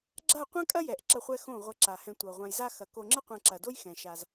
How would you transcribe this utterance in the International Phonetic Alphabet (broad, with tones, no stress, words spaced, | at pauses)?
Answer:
ɡ͡ǁa˦˨qʷã˦ kʼɐ˦jɛ˨ʔ ǁɐ˧χʷɛ˧ xõ˦˨ ʁʷɘ˧ǁa˨hɛ̃˧ tʷɤ˨ʁʷã˧jza˦ xɐ˨ko˧ŋ͡ǁɘ˦ qʷɛ̃˧ǁɐ˨do˦j xɛ̃˨ ʃa˧z